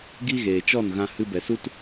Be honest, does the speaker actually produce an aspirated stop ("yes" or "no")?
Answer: no